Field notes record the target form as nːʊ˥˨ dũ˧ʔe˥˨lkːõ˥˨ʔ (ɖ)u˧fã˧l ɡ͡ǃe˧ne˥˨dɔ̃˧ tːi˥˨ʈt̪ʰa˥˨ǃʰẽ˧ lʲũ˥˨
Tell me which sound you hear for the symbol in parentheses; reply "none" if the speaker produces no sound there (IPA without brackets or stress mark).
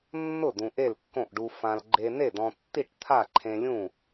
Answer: ɖ